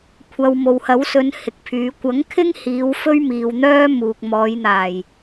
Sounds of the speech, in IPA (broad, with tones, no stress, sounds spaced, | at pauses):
kʷʰ ɐ˧ w m o˨ w h ɐ˨˥ w s ɵ˨˧ n h ɪ˨ k̚ pʰ yː˨˧ kʷ ɐ˨˥ ŋ kʰ ɪ˥ ŋ h iː˨˧ w f ɵ˥ ɥ m iː˨ w n̪ œː˥ m uː˨ k̚ m ɔː˨˧ j n̪ aː˨˩ j